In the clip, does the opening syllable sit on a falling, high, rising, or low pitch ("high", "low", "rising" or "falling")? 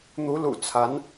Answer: rising